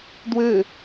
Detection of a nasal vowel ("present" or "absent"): absent